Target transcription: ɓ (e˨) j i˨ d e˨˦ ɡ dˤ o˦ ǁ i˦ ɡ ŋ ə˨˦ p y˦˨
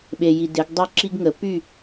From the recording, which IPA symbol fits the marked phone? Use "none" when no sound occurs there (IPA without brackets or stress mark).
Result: e˨